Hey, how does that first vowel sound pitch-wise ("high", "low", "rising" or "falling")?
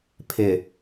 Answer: low